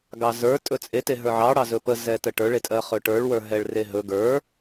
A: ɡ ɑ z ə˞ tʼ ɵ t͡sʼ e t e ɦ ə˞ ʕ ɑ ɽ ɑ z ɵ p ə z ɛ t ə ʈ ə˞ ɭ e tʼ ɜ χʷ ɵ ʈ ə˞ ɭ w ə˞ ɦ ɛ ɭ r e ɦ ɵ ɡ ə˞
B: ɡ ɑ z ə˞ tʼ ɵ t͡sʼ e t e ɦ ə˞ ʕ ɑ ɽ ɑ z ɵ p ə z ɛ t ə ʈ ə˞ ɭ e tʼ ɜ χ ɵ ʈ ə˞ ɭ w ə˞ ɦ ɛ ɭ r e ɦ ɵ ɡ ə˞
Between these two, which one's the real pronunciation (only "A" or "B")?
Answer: B